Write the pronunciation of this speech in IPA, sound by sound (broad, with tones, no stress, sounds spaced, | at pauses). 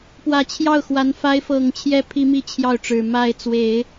p w ä˨˩ t͡ɕʰ j ɑ˥˩ ʊ̯ x w a˧˥ n f a˧˥ ɪ̯ f ɤ˨˩ ŋ t͡ɕʰ j ɛ˥ pʰ i˥ m i˥˧ t͡ɕʰ j ɑ˥˩ ʊ̯ ʈ͡ʂ ɻ̩˨˩ m a˥˩ ɪ̯ t͡s w e˨˩˦ ɪ̯